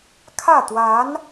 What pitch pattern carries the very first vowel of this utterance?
falling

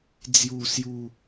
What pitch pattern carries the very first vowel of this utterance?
falling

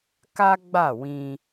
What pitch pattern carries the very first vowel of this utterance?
high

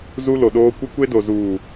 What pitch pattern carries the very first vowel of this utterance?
high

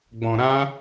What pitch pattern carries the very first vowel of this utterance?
low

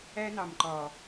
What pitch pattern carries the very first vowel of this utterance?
high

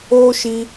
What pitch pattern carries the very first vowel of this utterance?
high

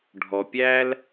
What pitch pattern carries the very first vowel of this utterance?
low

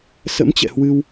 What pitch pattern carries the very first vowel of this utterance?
rising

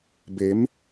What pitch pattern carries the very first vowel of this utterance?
rising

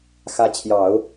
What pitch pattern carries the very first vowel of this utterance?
rising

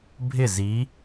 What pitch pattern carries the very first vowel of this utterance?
falling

